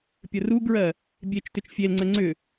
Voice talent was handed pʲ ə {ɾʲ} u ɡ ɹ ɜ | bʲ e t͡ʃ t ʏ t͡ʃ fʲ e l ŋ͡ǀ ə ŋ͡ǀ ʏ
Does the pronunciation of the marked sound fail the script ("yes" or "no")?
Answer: yes